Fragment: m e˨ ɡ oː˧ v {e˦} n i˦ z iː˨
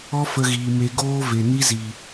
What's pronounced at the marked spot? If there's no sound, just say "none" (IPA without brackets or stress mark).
e˨